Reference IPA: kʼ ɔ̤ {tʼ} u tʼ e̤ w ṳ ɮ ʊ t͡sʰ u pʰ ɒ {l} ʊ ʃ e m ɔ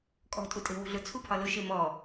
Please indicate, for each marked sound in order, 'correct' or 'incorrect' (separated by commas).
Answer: correct, correct